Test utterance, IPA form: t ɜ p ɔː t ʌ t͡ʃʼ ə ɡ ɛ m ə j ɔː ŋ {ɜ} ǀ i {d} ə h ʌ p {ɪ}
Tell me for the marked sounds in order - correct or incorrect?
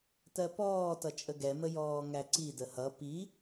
incorrect, correct, incorrect

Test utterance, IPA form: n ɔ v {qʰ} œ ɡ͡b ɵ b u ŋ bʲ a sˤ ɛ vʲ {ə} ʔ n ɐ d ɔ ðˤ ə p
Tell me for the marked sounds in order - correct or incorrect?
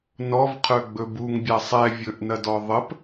correct, incorrect

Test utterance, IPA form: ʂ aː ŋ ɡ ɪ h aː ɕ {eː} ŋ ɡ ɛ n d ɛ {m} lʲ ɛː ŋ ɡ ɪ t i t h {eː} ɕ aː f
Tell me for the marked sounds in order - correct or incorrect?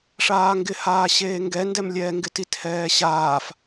correct, correct, incorrect

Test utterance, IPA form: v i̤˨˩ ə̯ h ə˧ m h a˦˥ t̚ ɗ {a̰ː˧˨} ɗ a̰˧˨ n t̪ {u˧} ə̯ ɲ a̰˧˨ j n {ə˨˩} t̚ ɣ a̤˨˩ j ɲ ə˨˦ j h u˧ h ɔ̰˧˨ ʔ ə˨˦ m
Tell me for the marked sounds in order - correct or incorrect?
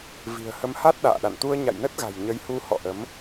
correct, correct, incorrect

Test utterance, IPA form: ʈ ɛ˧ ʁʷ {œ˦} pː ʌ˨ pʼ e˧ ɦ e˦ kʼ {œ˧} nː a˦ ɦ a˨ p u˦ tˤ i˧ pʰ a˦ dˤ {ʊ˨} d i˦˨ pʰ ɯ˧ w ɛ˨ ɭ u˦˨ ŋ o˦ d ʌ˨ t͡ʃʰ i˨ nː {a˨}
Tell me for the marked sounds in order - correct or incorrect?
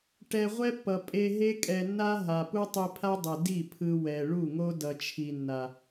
incorrect, incorrect, incorrect, correct

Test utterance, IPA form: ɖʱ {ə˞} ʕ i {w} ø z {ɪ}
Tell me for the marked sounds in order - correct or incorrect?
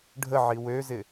incorrect, correct, correct

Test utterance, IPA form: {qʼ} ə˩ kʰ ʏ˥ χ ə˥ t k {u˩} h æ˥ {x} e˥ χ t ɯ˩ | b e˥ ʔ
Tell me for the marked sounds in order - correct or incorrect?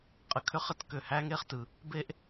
correct, incorrect, incorrect

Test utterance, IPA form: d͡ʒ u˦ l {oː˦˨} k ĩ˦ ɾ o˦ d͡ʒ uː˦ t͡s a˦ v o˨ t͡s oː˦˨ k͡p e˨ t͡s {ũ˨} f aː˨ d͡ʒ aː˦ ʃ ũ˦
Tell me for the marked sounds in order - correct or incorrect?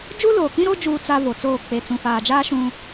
incorrect, correct

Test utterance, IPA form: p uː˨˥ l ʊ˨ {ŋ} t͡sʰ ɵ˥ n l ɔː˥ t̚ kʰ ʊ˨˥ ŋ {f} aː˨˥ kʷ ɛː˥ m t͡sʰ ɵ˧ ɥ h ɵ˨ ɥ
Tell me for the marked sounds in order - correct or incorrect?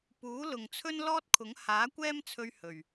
correct, incorrect

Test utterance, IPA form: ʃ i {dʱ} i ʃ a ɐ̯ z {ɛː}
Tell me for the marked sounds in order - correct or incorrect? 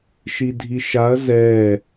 correct, correct

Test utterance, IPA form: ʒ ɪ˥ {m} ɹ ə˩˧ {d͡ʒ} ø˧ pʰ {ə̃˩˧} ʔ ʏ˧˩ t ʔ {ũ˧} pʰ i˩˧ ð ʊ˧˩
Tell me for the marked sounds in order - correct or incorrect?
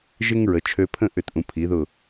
incorrect, incorrect, incorrect, incorrect

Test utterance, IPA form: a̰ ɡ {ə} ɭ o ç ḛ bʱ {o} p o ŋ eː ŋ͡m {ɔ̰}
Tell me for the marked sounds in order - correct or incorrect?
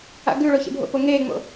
incorrect, incorrect, incorrect

